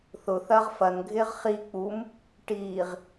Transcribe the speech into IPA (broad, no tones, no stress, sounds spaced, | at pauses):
θ ʊ θ ɐː ʁ f ɐ n ɡʱ ɪː ʁ χ i k͡p u m | ʈ iː ʁ